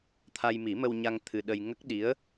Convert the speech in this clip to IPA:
t̪ʰ a˧ j m i˨˩˦ m ə˧ w ɲ a˧ ŋ t̪ʰ ɨ˧ ɗ ə˧ j ŋ ə˦˥ k̚ ɗ i˧˥ ə̯

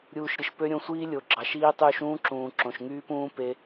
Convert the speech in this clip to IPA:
ɾʲ uː˦ ʃ ɾʲ ɯ˧ ʃ p ø˦ ɾʲ õ˧ sʷ iː˦ lʲ o˨ ɡ͡ǁ ɑ˨ ʃ iː˧ tˤ yː˧ ʃ ũː˦ ǁ ũː˨ ǁ õ˨ ʃ ŋ yː˦ p ũː˦ p e˧

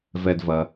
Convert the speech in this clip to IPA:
v ɛ˨ d v ɐ˩

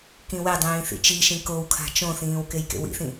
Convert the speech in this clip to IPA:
k ĩ w e dˤ ĩː θ ḭ t͡ʃ i ʃ ĩ k o w kʰ a̤ t͡ʃ õ θ ĩː w k e j k ḛ w ḭ θ ĩ

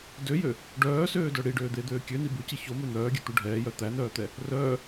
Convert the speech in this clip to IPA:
d ø j ø | ɖ œː s øː d œ ɽ i ɖ øː d̪ e d̪ øː kʲ ø n i b ʉ c i ç o m ø n̪ œː ɡʲ ø t̪ u ɖʱ ɛː j œ t̪ æ n œː t̪ ɛ | r œː

